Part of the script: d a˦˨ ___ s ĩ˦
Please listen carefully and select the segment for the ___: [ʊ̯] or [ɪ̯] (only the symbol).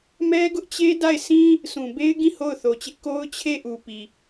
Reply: ɪ̯